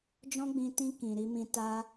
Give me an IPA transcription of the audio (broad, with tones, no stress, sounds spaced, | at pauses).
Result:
d͡ʒ ɔ̃˦ ɡ͡b ĩ˧ t ĩ˧ k ĩ˨ ɾ i˧ m ĩ˧ t a˧